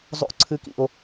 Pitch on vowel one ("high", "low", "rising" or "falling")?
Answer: high